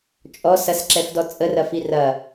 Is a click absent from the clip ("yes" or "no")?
no